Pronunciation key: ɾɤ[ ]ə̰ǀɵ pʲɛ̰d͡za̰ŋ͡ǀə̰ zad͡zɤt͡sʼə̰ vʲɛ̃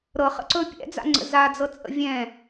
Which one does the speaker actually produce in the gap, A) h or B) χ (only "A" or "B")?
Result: B